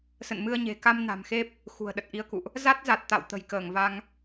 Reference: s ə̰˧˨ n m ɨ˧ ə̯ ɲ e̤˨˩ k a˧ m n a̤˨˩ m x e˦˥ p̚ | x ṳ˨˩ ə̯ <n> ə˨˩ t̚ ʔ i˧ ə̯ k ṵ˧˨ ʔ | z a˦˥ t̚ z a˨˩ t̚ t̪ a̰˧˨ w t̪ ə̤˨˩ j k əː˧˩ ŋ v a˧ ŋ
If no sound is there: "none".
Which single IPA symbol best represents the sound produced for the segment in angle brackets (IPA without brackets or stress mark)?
ɗ